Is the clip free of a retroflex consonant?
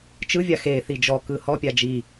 yes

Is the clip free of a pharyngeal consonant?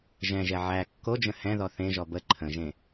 no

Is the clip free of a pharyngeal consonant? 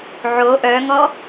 no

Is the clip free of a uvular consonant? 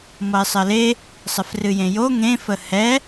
yes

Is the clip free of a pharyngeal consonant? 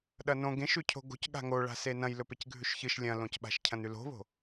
yes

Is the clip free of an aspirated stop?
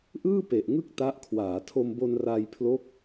no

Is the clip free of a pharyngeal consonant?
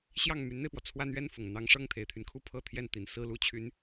yes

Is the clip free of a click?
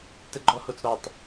no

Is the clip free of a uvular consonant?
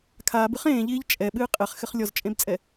no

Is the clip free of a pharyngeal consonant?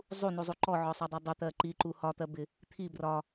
no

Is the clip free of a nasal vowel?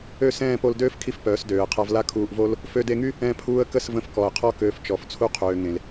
no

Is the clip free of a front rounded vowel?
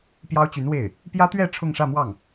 no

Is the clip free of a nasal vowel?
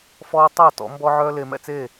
yes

